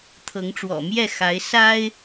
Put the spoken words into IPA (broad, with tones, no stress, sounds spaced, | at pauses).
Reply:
t̪ʰ ɤ˨˦ ŋ ʈ͡ʂ w ɔ̰˨˩ m j ɛ˥˨ x a˨˦ ɪ̯ s a˦ ɪ̯